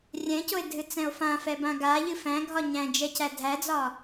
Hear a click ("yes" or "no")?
no